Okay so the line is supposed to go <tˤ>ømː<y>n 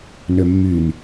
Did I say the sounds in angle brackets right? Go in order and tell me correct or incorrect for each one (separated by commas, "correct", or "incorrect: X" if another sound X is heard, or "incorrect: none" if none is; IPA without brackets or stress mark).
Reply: incorrect: n, correct